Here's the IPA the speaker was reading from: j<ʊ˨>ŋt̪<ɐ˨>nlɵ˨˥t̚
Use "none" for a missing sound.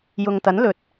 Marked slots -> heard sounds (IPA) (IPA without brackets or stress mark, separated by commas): ʊ˨, ɐ˨˥